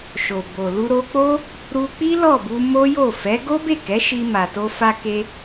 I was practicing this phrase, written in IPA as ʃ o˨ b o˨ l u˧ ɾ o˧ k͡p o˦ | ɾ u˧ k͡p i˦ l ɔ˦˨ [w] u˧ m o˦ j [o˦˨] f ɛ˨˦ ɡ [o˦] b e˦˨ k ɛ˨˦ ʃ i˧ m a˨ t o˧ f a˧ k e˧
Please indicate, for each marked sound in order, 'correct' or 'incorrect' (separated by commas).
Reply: incorrect, correct, correct